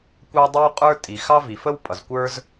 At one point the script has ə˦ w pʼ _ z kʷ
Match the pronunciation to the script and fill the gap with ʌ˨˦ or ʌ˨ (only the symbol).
ʌ˨